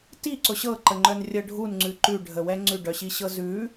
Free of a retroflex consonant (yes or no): no